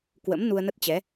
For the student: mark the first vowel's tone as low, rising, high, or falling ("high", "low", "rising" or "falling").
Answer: rising